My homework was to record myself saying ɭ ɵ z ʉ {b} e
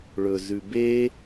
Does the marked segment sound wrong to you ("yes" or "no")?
no